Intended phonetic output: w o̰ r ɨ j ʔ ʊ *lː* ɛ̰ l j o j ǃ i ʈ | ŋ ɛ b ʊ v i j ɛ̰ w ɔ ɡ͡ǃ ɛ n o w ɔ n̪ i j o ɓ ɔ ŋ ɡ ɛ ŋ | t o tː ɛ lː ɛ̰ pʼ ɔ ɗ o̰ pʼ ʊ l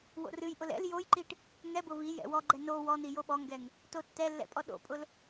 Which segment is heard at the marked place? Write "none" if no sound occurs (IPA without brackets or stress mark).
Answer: l